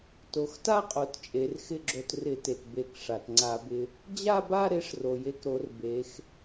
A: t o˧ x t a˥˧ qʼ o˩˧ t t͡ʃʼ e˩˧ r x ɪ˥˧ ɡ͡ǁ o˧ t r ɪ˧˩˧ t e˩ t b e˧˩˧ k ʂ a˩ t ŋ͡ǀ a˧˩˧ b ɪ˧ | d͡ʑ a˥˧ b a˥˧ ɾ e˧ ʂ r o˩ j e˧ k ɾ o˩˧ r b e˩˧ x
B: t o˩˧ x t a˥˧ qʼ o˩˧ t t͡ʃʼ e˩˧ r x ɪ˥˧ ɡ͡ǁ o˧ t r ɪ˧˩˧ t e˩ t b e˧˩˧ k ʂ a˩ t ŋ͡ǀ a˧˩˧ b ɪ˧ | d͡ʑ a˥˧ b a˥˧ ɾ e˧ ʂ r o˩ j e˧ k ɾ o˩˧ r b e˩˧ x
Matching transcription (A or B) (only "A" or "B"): B